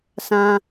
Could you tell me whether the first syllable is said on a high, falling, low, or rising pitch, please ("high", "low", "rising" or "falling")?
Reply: high